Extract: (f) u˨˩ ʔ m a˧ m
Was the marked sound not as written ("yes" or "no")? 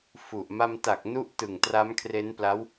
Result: no